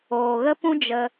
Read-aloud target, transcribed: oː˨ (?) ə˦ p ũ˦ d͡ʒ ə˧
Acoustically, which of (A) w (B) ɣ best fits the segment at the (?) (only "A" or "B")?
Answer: B